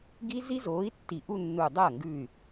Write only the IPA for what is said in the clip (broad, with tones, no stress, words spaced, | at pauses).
ɡi˦˥zi˦˥zoː˨˥i̯ tːi˧˩ʔu˥˧nːu˧˩ dˤɐː˥˩ŋɡʉ˧˩y̯